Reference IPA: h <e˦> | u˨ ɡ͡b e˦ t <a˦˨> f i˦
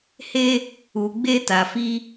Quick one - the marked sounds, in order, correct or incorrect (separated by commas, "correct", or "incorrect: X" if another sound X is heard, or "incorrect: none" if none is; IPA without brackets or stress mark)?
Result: correct, incorrect: a˨